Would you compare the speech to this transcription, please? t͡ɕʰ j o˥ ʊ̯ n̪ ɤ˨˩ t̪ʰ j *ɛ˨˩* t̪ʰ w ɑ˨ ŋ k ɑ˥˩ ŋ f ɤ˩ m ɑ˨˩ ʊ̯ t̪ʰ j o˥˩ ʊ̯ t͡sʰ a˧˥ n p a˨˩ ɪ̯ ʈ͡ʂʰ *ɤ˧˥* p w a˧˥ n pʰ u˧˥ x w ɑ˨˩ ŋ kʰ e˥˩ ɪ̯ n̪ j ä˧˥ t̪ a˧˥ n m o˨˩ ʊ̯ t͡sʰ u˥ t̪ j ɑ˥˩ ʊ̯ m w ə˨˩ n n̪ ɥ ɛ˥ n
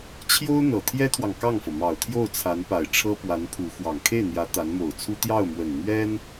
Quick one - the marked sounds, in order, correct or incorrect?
incorrect: ɛ˥, incorrect: ɤ˥

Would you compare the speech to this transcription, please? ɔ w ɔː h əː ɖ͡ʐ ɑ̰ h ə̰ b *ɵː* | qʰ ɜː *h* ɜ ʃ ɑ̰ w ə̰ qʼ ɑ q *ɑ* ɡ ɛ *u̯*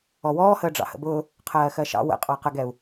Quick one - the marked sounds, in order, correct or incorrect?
incorrect: ʊː, incorrect: x, incorrect: ə, correct

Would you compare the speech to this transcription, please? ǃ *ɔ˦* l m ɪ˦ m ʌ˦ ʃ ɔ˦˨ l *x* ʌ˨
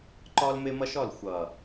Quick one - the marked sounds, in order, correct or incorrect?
correct, incorrect: xʷ

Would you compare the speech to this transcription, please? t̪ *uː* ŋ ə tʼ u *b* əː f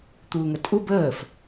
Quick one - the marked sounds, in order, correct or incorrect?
correct, correct

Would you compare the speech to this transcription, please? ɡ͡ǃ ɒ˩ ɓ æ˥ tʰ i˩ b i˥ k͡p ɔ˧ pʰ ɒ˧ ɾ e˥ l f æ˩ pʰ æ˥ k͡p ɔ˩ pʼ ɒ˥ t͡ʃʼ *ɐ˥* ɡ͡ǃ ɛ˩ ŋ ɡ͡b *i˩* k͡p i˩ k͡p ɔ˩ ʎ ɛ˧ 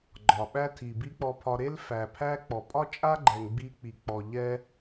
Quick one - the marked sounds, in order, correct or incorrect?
incorrect: a˥, incorrect: i˧

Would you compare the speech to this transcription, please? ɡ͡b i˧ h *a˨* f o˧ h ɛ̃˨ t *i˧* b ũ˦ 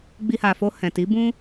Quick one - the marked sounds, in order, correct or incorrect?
correct, incorrect: i˨˦

